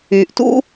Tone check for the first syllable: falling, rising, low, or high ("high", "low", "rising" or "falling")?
low